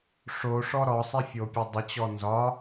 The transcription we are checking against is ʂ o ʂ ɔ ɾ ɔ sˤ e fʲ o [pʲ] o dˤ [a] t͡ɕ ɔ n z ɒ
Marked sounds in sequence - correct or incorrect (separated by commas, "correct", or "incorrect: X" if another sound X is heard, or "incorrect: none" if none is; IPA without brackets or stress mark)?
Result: correct, incorrect: ə